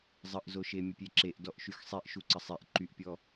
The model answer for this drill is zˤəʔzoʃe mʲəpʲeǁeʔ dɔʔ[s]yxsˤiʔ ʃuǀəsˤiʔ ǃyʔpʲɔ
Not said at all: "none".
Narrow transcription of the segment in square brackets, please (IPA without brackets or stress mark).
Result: ʃ